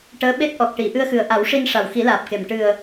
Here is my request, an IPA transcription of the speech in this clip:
ʈ əː˧˥ ɓ e˦˥ t̚ ʔ ɔ˨˩ k̚ ʈ i˨˩˨ ʔ ɨ˧ ə̯ x ɨ˨˩ ə̯ ʔ a˨˩˦ w ʂ i˧ n ʂ a˨˩ w x i˨˩˦ l aː˨˩ p̚ k e˨˩ m ʈ ɨ˨˩ ə̯

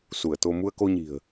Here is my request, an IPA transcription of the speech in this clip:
s u˧˩ ə̯ t̪ o˧ m u˧ ə̯ k o˧ ɲ i̤˨˩ ə̯

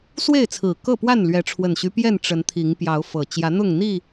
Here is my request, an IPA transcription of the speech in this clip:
s w e˥˨ ɪ̯ t͡sʰ ɹ̩˨˩ k ɤ˥˨ p w a˥˨ n l ɥ ɛ˨˦ ʈ͡ʂʰ w ə˨˩ n ɕ y˦ p j ɛ˥˨ n ʈ͡ʂ ə˨˦ n t̪ʰ i˨˦ ŋ p j ɑ˨˦ ʊ̯ f ɤ˨˩ t͡ɕ j ä˨˦ n̪ ʊ˥˨ ŋ n̪ i˥˨

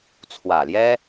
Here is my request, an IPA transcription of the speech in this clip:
t͡sʰ w ä˨˩ l j ɛ˥

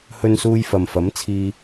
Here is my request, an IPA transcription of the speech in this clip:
h ɵ˧ n s uː˧ j f ɐ˨ m f ɐ˨˥ m t͡sʰ iː˧

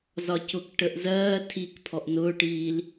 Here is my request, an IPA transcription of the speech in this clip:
z ɒ c ʊ k ʈ ə ʔ z ɜː tʰ i k pʰ ɔ ʔ n ʊː ʈ iː l

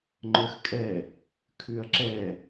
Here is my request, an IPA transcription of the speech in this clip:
ŋ͡ǃ œ x kʼ ɛ | kʰ ʉ ɐ̯ ǁ ɛ

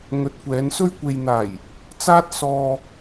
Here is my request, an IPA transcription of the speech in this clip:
ŋ ɵ˨˥ t̚ kʷ ɛː˨˧ n s ɵ˧ ɥ kʷ e˨ j n̪ aː˨˩ j | t͡s aː˥ t̚ s ɔː˧

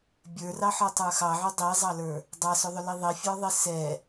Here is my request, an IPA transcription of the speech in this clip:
bʲ ə˞ r ɑ ħ ɔ tˤ ə˞ x ɑ ʕ ʏ dˤ i zˤ ɑ l ə˞ | dˤ ɑ s ʏ ðˤ ʏ l i ðˤ i fʲ ə˞ ðˤ i s ɛ

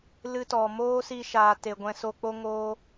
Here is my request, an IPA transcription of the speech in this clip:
l ɨ˧ t ɔ˨ m oː˦ s i˧ ʃ aː˨ t e˨ ɡʷ ɛ̃˧ s o˧ k͡p o˦ ŋ oː˧

